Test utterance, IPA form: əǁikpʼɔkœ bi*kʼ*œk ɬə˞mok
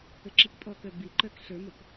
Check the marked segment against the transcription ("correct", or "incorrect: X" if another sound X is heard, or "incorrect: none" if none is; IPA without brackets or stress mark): incorrect: ǃ